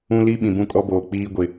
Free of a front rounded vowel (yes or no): yes